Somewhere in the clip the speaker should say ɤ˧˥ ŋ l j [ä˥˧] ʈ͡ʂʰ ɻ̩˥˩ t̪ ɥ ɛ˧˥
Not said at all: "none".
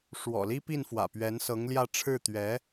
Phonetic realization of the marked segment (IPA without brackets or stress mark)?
ä˥˧